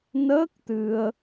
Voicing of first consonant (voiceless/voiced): voiced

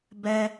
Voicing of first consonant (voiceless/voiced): voiced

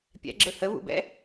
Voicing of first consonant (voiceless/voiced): voiceless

